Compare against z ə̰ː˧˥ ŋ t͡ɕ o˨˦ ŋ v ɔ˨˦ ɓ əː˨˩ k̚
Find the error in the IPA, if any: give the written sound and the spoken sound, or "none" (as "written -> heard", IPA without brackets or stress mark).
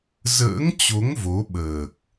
ɔ˨˦ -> o˨˦